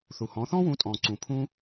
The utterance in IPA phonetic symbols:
θ u˩ h ɔ̃˩˥ θ ɔ̃˥ w ũ˩˥ tʼ ɔ̃˩ ǀ ũ˩ pʰ ũ˥

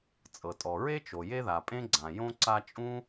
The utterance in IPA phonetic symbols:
t͡sʼ ɤ˩ tʼ ɔ˩ ɹ e˥ t͡ʃ o˩ j e˦ ð a˩ pʼ ẽ˦ ɡ͡ǀ ã˩ j õ˦ ǀ a˦ t͡ʃʼ ũ˥

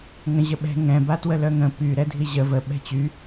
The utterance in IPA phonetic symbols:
ŋ ə̃ ʑ ə ɓ ɛ̤ ŋ ɛ̃ b a t w ə l œ ŋ ə̃ p y ɾ ɛ dʱ i ʑ ə v ə ɓ ɛ̤ t͡ɕ y

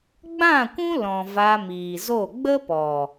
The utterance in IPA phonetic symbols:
ɡ͡b ã˦˨ kʷ ũ˦ l ɔ̃˨ v a˧ m iː˨ z o˦˨ ɡ͡b ə˦ p ɔ˨

